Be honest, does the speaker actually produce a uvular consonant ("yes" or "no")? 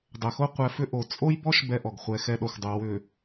yes